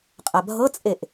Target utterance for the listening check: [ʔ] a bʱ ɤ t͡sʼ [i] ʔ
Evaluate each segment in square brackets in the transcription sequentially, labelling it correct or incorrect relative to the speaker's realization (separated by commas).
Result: incorrect, incorrect